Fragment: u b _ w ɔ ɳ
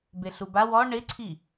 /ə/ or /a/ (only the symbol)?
a